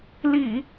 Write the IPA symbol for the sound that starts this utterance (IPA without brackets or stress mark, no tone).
l